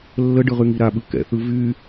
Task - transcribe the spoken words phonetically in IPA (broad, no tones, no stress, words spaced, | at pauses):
lːəɖɯʁyŋi ɾaɓɯ kɛ̰θɯ vy